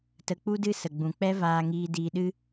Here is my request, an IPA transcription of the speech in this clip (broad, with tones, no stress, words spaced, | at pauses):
tə˧k͡pu˦dɨ˦ sə˨ɡ͡bũ˨k͡pɛ˦ vaː˧ŋiː˧ diː˧ɗɨ˦